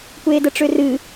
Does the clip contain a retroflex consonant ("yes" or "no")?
yes